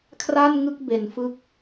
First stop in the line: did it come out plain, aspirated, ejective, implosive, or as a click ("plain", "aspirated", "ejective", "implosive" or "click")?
aspirated